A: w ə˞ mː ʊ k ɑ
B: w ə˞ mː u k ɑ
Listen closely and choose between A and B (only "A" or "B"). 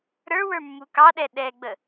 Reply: B